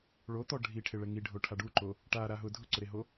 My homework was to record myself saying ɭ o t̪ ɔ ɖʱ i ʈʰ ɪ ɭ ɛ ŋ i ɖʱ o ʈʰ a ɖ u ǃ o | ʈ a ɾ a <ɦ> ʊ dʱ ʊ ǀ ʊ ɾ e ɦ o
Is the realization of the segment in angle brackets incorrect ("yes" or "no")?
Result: no